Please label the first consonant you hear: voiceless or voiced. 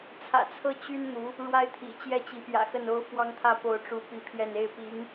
voiceless